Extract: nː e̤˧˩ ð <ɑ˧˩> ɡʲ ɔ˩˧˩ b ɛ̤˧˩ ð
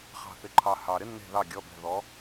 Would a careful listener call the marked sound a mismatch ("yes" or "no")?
no